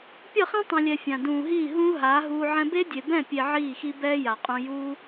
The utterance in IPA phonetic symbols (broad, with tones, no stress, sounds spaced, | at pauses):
pʲ ʌ˦˨ χ ĩ˦ tˤ ĩ˨ lʲ ɛ˨ fʲ ã˨ d ũː˨ ɦ iː˦˨ ɦ ũː˦ ɦ aː˨˦ ɦ uː˧ ʕ ɛ̃˧ b e˦ dʲ e˨ b ɛ̃˦˨ pʲ e˧ ʕ iː˦˨ x i˦ b ɛː˦ j a˨ qʼ ũ˧ j uː˦